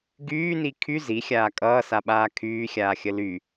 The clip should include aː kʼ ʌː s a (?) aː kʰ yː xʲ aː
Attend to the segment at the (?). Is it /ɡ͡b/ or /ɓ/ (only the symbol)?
ɓ